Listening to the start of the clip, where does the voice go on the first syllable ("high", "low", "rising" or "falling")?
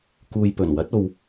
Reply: low